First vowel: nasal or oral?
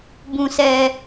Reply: nasal